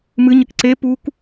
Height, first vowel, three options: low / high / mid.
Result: high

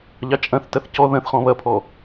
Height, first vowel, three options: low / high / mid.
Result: low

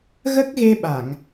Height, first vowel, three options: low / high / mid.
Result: mid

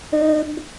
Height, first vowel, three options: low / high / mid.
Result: mid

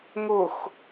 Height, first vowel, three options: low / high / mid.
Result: high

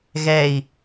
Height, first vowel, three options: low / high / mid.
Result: mid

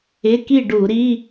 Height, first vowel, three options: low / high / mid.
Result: high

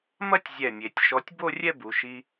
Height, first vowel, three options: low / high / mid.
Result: low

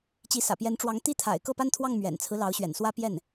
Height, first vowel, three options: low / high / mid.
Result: high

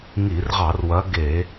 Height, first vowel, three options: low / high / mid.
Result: high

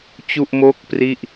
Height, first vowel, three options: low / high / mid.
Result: high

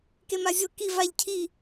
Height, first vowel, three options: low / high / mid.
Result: mid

